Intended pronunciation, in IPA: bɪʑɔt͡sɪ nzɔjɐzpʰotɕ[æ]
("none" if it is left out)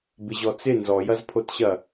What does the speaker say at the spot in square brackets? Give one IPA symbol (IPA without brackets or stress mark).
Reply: ɐ